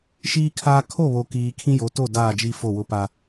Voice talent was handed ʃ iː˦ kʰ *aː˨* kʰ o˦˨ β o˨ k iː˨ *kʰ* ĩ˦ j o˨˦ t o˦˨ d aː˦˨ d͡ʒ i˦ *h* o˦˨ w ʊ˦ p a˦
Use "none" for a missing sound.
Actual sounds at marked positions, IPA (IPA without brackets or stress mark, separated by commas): aː˦, kʰ, f